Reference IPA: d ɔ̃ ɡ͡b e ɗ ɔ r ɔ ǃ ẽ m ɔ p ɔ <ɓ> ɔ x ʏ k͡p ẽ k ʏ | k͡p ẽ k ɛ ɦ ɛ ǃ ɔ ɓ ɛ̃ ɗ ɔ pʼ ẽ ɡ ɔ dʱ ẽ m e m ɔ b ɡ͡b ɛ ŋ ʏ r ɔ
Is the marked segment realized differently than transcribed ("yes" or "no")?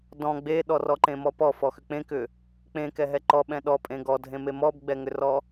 yes